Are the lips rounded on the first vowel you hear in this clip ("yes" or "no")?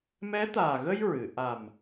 no